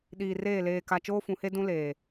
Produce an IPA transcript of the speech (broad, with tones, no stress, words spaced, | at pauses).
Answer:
ɗiː˨reː˦˨ leː˨ka˨ t͡ʃoː˦fũ˨˦he˦ dũ˦leː˨